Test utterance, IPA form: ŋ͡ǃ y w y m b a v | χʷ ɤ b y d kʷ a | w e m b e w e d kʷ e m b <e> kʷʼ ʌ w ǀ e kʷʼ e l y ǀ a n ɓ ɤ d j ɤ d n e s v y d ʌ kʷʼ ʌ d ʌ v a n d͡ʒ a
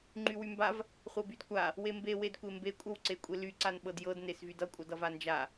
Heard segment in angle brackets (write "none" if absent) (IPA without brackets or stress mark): e